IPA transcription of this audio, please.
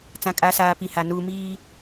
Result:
t͡s ã˨ kʼ a˨˦ s aː˨ p i˨ h a˨ n uː˨ m iː˦

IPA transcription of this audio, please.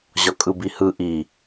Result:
ʑ ɒ kʼ ɯ b i h ɯ ʔ i

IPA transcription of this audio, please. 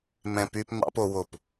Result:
m ɛ̃˦ p y˦ p m ɑ̰˦ p o˦ w o˦˨ p

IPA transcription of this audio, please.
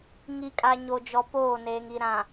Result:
ŋ i˨ kʼ a˨ ɲ o˨ d͡ʒ ɔ˨ p oː˦˨ n eː˨ ŋ i˨ ɾ ã˨

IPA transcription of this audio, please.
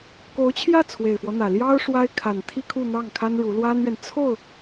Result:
k o˧˥ ʊ̯ t͡ɕʰ j ä˥˩ t͡sʰ w e˨˩ ɪ̯ f w ɔ˦ n̪ ä˨˩ l j ɑ˥ ʊ̯ ʂ w a˥ ɪ̯ kʰ a˨˩ n t̪ʰ i˥ kʰ u˥˧ n̪ ɑ˥˩ ŋ kʰ a˥ n ɻ u˧˥ l w a˥ n ɥ ɛ˨ n t͡sʰ o˥˩ ʊ̯

